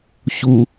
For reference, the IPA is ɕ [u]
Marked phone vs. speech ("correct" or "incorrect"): correct